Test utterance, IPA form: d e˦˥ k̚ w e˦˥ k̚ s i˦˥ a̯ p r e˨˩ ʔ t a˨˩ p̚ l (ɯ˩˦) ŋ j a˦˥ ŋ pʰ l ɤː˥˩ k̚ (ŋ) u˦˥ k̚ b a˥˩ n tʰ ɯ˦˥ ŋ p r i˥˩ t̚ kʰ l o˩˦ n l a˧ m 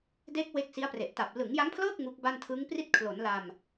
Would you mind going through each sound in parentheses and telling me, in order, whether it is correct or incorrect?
correct, correct

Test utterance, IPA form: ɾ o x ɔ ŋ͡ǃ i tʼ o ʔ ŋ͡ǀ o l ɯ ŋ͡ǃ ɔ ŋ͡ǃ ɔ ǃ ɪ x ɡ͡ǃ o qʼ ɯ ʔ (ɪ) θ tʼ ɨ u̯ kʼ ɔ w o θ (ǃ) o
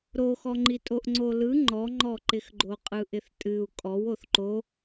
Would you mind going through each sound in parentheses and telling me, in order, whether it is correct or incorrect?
correct, correct

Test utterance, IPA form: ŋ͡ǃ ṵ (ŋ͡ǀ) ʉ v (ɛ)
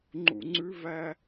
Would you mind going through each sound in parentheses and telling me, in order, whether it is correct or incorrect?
correct, incorrect: æ

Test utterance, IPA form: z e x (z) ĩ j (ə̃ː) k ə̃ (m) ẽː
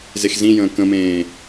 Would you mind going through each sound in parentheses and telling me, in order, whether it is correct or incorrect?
correct, correct, correct

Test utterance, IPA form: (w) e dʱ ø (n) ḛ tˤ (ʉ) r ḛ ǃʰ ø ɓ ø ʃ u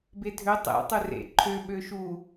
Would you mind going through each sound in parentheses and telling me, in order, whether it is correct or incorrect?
incorrect: b, incorrect: tˤ, incorrect: ø

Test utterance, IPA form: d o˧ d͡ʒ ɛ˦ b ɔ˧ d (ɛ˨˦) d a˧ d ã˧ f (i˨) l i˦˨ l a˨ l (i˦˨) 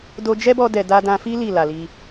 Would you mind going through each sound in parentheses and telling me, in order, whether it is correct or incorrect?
incorrect: ɛ˨, incorrect: i˦, incorrect: i˧

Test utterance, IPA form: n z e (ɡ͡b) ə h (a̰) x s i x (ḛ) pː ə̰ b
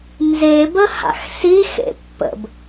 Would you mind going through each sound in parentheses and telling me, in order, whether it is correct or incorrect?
incorrect: b, correct, correct

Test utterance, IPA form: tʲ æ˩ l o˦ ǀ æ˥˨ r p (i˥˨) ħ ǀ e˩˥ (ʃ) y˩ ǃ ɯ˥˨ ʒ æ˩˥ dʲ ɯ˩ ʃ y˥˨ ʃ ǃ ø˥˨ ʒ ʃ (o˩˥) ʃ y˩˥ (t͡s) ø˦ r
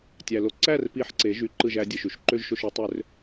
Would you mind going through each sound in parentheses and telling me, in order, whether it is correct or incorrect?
correct, incorrect: ʒ, incorrect: o˥˨, incorrect: tˤ

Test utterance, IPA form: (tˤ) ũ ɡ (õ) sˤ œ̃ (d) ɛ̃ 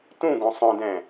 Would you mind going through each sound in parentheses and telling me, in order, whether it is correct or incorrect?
incorrect: t, correct, correct

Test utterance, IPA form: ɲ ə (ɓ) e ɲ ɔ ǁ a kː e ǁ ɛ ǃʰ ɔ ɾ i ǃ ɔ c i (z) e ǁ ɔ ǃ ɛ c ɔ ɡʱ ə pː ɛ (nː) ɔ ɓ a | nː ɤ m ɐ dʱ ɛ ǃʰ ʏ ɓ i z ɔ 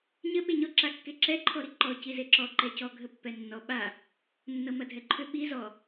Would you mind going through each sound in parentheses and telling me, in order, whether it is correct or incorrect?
correct, correct, correct

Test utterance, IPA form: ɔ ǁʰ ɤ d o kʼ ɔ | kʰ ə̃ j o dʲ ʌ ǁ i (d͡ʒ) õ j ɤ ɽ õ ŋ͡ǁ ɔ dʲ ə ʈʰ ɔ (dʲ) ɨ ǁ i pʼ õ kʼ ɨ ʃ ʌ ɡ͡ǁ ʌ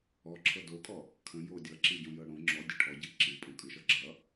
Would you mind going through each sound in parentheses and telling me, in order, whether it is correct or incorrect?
incorrect: ɟ, incorrect: ɟ

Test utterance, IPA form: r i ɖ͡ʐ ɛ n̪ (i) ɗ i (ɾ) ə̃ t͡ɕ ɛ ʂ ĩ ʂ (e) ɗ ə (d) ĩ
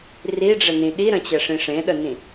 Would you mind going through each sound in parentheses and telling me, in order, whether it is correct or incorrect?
incorrect: ĩ, correct, incorrect: ẽ, incorrect: n

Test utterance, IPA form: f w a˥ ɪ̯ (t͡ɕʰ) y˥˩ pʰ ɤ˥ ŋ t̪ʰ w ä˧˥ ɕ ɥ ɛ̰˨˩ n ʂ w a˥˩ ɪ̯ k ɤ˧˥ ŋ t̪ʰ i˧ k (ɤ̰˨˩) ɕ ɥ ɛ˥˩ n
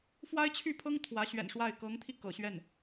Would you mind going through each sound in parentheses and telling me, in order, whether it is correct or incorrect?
correct, correct

